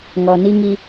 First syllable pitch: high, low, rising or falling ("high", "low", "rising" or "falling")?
low